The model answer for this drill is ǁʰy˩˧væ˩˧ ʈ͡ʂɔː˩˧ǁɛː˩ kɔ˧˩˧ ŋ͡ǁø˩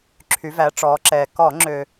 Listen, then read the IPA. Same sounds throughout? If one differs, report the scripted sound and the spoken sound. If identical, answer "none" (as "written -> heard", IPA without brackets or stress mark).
none